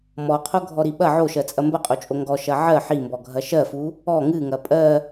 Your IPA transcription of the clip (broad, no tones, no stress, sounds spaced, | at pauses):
m ɔ qʰ o ɡʱ ɔ ɾ i ɓ ɐ ʕ o ʃ ɜ t͡sʼ ɐ m b ɐ qʼ o t͡ʃʼ o ŋ ɡ ɔ ʃ ɐ ʕ ɜ ħ i m b ɔ ɡʱ ɐ ʃ ɜ f u | ɔ ŋ ɨ ŋ ɐ pʼ ɜ